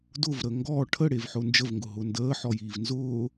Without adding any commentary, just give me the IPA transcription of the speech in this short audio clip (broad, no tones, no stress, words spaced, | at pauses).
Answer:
dʊvɾə ŋɡɔː ʈʰəɽevħʊː nd͡ʒəvŋɡʊɦʊː ndəːħɔjiːv nzʊː